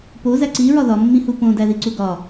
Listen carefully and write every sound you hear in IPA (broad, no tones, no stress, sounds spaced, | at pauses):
p o z æ ǀ i ɹ ɒ ð ɒ mː ĩ h u p õ d æ ð i ǀ u ɡ ɒ